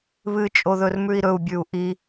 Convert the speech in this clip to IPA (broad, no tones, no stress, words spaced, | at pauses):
βɨt͡ʃʼo ðɵrmʉi̯ɾɵu̯bʲʉu̯ ʔi